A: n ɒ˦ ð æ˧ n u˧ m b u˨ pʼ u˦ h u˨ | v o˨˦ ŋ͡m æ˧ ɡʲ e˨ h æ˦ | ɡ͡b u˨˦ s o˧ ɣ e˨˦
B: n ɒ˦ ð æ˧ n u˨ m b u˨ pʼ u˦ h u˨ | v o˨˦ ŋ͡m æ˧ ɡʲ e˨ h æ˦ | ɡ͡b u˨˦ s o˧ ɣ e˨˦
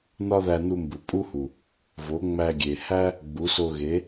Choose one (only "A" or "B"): A